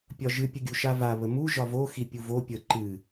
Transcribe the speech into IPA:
pʲ ɒ ʒ ɨ pʲ ə ɡʲ u ʃ a v a β ə m u ʒ ɒ v o x i pʲ u v o pʲ ə ǃ ɨ

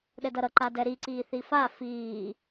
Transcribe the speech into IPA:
ɗ ɛ d ʌ ɾ ʌ ǃ a d ɛ ɾ i ǀ iː θ i f a f iː

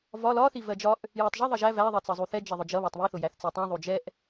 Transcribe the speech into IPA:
v ɒ l ɒ θ i v ɜ d͡ʒ ɒ ʔ | j æ tˤ ʒ ʌ ðˤ ʌ ʒ æ v æ ðˤ ɜ t͡s ʌ zˤ u θ ɛ d͡ʒ ɛ ðˤ ʊ d͡ʒ ʌ β æ tˤ β i θ ʊ j æ θ t͡s i tˤ ĩ ðˤ u d͡ʒ ɛ ʔ

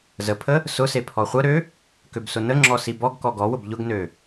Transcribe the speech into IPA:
z ə pʰ ə | s ʊ s e pʰ ɔ χʷ ə ɾ ø | k ø b s ʊ n ə ŋ͡ǁ ɔ s i b ɔ ɡ k ɔ ɡ ɔ w ʊ b ʎ ʊ ɡ n ø

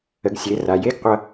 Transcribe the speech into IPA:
ə˩˧ ɡ sʲ e˩˧ r a˩ j e˥ ɡ qʷ ʌ˧

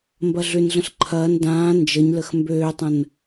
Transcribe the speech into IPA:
m b ɐ ɮ ʏ n ɮ ə̃ ɬ ǃʰ ɐː n d ãː n d͡ʒ ə ɲ l ə x m b øː tˤ ə̃ n

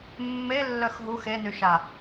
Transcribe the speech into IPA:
mː e lː œ x ɦ u x e n y ʃ a

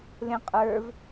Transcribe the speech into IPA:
l ẽ qʼ ə˞ v

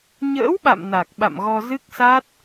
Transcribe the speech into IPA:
ɲ ə̰ː˧˥ w ɓ a̰˧˨ m n a˨˩ k̚ ɓ a̰˧˨ m ɣ ɔ˧ z ɨ˦˥ k̚ s a˦˥ t̚

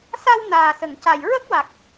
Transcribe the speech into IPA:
s a˧ w n aː˨˩ s ə˨˩˨ ŋ c a˨˩ j ɹ ə˦˥ k̚ w a˨˩ k̚

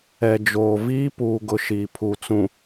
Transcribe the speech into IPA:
ɛ˨ d͡ʒ oː˨ v iː˦ p uː˨ ɡ ʊ˦ ʃ iː˨ pʰ u˨ t͡s ũ˨

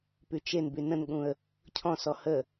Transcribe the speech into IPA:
p y t͡ʃ e n b y n ə̃ n ɠ ũ ə̯ | cʰ ɔ̃ s ɔ h ə

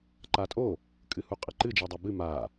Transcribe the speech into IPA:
ǃ a tʼ o | kʼ ɨ h u qʼ ɘ ǃ ɨ d͡ʒ i dˤ e b ɨ m a

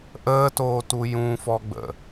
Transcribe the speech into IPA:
ʔ əː t oː t u j ũ f ɔ ɡ͡b ə̰

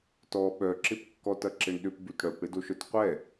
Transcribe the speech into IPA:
t ɔ ɓ œ ǁ ɪ p kː ɔ t ɐ ǁ ɪ ɳ ɗ ʏ p b y t ɽ œ p ɽ ɪ d o ʃ œ t qʷ ɛ

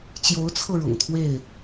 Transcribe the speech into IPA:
t͡ɕ j o˨˦ ʊ̯ t͡sʰ ɤ˧ ɻ ʊ̰˨˩ ŋ t̪ʰ w e˥˨ ɪ̯

